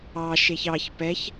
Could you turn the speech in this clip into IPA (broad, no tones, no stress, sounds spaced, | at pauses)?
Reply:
ɑ ʃ e ç ɑ ç p ɛ ç